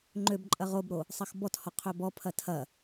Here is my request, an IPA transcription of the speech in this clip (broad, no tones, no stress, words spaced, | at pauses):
ŋ͡ǃøbǃʼɐʁ obɾo | sˤɐxbɔthɔ qʰøbɔpʰɐ tʰɐ